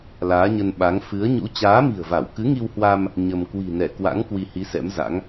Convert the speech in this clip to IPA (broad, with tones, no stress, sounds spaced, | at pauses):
l aː˨˦ ɲ ə˧ n ɓ a˨˦ ŋ f ɨ˨˦ ə̯ ɲ ṵ˧˥ t͡ɕ aː˨˦ m i̤˨˩ ə̯ v a˧˩ w k ɨ˨˦ ŋ i˧ w h w a˧ m | ɲ ə˧ m k w i̤˨˩ n ɛ˧˩ k w a̰˧˥ ŋ k w i˧ h i˨˦ s ɛ̰˧˥ m z a̰˧˥ ŋ